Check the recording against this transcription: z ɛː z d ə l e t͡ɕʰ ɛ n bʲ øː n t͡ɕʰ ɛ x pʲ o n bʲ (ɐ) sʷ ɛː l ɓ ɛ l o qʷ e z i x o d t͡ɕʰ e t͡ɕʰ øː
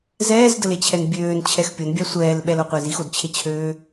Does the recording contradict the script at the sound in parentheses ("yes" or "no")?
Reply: yes